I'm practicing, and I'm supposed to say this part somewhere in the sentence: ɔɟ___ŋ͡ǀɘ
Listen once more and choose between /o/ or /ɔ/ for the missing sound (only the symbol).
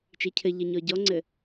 ɔ